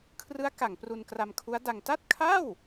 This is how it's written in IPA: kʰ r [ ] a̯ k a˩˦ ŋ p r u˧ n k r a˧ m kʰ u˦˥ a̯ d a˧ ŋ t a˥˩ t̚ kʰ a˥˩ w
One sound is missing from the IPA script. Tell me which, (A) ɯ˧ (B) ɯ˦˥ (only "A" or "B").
B